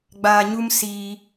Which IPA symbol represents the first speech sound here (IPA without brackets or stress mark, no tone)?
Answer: ɡ͡b